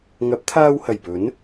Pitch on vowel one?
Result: rising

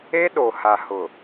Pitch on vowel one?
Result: high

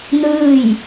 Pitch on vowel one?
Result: falling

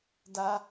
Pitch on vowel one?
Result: high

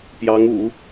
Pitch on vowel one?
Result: rising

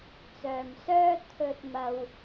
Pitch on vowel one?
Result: low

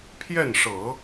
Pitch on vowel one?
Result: falling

